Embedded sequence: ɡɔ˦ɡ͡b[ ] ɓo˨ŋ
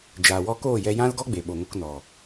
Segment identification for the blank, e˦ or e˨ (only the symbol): e˨